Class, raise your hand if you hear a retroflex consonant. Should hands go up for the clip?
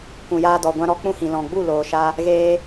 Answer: no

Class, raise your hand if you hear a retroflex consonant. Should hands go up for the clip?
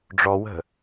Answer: yes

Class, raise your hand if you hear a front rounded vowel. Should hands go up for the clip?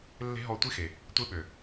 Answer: yes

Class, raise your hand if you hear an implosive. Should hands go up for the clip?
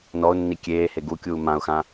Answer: no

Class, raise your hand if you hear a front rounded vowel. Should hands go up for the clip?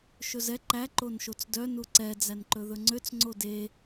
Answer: yes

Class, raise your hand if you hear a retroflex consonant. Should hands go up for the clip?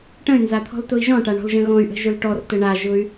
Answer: yes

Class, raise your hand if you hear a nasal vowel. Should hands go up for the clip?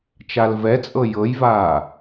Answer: no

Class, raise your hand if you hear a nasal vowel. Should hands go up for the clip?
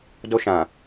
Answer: yes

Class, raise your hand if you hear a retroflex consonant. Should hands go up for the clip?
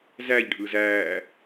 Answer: yes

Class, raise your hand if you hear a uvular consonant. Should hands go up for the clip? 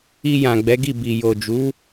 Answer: no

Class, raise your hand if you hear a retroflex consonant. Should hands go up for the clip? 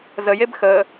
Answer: no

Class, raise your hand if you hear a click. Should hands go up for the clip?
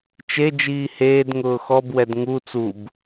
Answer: no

